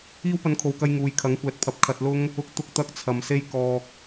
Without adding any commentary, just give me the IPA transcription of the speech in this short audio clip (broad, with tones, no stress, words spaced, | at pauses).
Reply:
iː˥wpɐ˧nkʰo˨wkɐ˧j ŋuː˨jkʰɐ˨˥ŋkʷɛː˨t̚pʰɐ˨˥p̚ kʰɐ˧t̚lʊ˥ŋ | ʊ˧k̚t̪ʊ˧k̚t̪ɐ˧k̚ t͡sʰɐ˨mse˥j kɔː˧k̚